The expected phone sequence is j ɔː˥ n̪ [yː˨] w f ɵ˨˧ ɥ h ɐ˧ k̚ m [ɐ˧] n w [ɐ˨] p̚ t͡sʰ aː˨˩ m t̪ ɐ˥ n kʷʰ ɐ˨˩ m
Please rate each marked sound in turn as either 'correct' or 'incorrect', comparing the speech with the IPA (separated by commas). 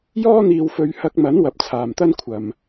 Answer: incorrect, incorrect, correct